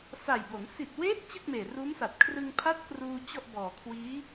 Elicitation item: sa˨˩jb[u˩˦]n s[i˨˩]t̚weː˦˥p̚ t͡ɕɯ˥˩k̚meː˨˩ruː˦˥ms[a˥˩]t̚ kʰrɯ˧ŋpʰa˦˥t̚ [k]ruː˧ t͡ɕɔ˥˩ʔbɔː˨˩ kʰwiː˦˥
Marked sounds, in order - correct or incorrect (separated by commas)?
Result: incorrect, correct, incorrect, correct